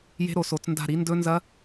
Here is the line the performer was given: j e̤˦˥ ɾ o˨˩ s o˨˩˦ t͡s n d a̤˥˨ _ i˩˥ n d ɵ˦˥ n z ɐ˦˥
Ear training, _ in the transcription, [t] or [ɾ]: ɾ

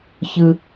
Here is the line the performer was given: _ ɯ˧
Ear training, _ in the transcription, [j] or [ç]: ç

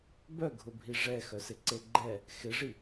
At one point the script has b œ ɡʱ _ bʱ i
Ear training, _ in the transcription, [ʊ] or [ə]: ʊ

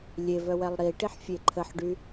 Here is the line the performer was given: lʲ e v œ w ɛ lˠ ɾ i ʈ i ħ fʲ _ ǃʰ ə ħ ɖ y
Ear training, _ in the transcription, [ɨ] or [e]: e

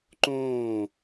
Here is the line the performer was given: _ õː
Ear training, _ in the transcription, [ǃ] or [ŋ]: ǃ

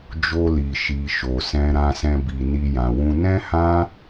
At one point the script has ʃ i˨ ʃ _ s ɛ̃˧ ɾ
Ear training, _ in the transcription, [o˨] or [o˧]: o˨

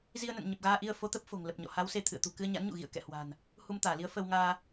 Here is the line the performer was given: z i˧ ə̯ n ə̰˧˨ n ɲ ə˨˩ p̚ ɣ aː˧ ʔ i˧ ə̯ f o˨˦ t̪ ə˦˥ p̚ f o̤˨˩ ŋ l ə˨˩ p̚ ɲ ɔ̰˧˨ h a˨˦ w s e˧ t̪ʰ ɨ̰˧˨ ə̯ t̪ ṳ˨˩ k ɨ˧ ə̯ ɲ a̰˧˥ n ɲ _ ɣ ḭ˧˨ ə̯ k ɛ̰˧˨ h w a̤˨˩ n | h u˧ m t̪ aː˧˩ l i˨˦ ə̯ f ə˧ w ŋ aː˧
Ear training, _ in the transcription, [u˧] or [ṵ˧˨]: ṵ˧˨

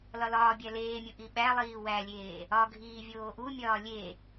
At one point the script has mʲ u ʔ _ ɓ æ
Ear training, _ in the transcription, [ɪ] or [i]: i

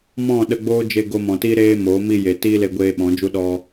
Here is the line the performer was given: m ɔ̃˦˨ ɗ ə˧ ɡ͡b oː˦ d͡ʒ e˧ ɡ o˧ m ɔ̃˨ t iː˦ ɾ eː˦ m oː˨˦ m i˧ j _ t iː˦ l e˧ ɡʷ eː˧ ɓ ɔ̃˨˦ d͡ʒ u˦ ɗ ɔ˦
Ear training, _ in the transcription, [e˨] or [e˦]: e˨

